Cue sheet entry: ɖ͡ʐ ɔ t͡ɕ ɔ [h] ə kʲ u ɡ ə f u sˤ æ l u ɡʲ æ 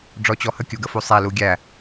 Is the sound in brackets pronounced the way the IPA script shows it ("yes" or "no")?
yes